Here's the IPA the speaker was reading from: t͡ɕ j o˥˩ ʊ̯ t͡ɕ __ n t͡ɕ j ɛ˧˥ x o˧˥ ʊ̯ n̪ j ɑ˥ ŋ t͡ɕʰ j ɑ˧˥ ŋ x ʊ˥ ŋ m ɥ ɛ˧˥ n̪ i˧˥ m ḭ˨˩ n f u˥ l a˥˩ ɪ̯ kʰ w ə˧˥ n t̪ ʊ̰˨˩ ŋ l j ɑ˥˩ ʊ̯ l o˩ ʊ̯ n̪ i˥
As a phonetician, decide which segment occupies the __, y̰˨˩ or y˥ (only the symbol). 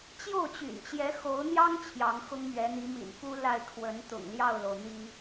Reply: y̰˨˩